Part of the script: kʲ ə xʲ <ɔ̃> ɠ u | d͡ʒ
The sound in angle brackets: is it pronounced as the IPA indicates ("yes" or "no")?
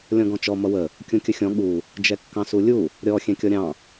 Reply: yes